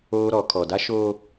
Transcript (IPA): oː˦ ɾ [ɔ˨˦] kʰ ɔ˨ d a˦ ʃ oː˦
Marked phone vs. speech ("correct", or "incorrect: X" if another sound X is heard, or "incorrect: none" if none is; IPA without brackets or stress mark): correct